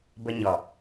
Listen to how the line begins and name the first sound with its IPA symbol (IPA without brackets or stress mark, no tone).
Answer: b